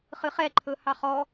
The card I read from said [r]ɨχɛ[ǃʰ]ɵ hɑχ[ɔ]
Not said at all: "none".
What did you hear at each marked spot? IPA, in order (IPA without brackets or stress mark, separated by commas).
χ, ǃʰ, ɔ